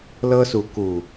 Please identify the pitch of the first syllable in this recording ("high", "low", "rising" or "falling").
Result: high